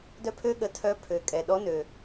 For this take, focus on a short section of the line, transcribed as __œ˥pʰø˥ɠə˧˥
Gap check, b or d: d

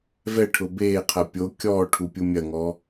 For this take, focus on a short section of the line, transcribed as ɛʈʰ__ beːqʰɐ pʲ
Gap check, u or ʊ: ʊ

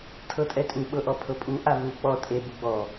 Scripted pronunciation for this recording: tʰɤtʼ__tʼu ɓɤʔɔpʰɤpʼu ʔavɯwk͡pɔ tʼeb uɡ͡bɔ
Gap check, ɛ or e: ɛ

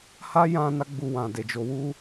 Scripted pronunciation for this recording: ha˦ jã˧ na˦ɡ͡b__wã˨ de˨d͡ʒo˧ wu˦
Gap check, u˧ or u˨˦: u˧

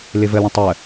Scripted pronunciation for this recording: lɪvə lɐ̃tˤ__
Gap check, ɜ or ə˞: ɜ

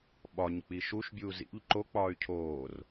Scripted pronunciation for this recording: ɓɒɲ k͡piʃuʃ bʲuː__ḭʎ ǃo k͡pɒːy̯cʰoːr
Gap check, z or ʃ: z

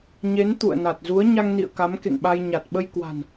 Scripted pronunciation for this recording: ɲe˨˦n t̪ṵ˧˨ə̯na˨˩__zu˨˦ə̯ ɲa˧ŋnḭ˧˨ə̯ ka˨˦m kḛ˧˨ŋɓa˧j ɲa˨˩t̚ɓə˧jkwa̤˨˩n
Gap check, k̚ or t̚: t̚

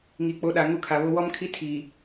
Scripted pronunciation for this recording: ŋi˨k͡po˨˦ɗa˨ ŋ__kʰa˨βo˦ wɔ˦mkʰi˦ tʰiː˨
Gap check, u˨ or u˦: u˦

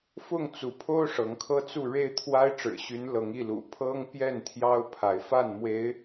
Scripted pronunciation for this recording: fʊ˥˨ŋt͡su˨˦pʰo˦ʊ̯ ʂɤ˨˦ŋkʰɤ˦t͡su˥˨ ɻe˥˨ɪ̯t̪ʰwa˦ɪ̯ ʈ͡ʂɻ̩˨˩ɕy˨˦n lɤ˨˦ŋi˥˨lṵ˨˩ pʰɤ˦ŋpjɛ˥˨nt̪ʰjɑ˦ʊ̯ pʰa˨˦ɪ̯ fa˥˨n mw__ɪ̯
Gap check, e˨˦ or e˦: e˨˦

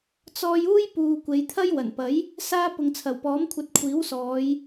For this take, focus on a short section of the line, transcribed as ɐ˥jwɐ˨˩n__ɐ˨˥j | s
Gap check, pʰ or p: p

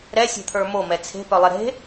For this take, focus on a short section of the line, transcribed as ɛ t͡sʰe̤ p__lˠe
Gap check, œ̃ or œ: œ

